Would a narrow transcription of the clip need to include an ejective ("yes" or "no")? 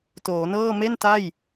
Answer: no